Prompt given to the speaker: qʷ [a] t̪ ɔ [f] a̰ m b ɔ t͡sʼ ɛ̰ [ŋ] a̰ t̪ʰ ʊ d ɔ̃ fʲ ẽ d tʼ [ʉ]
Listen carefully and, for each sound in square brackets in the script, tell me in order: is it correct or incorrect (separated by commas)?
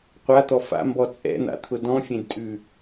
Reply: correct, correct, incorrect, correct